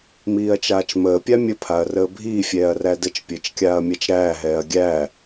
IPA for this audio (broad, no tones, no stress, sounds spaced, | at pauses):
m iː ɐ̯ t͡ʃ aː t͡ʃ m əː pʲ a mʲ ə pʰ a ɐ̯ r əː bʱ iː fʲ ɛː ɐ̯ r æ d ə t͡ʃ pʲ əː t͡ʃ kʲ aː ɐ̯ mʲ a t͡ʃ ɾ æː ɦ ɛː ɐ̯ ɡʲ æ